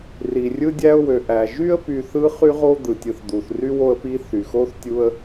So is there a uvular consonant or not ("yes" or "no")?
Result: yes